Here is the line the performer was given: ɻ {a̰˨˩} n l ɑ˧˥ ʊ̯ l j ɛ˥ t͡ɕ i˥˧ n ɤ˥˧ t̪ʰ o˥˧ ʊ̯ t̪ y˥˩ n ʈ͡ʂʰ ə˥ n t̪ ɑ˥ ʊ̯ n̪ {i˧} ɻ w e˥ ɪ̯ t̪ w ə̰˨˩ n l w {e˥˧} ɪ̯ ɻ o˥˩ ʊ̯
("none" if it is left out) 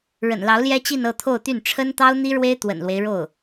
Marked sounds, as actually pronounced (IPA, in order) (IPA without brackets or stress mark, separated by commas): ə̰˨˩, i˥, e˦